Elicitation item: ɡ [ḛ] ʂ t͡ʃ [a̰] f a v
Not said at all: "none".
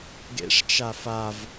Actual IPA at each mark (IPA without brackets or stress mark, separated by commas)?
ḛ, a